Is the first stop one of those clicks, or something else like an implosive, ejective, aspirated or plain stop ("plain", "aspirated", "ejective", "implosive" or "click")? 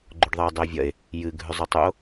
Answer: click